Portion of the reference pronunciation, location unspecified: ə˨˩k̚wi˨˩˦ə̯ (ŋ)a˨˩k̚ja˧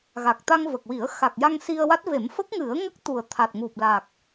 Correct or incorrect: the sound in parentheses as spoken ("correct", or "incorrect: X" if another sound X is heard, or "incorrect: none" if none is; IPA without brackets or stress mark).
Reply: incorrect: x